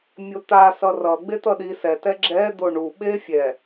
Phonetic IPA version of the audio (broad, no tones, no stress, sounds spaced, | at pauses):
mʲ o t̪ a s ʌ r ʌ ɡ͡b e t̪ ʌ ɗ i s ɛ t ɛ ɡ͡ǁ ɛ d̪ o ɳ u ɓ e fʲ ɛ